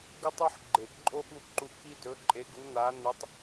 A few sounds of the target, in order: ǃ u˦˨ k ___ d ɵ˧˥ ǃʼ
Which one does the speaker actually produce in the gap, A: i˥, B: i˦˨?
A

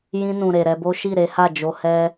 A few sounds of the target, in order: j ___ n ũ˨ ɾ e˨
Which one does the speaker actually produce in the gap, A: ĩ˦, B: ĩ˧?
B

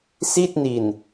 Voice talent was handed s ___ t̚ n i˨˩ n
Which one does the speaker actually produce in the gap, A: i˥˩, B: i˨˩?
A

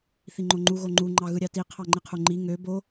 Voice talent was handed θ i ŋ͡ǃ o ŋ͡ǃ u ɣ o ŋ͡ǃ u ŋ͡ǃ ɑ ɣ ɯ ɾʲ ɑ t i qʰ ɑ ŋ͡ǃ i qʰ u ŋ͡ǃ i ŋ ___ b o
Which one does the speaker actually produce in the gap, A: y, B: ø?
B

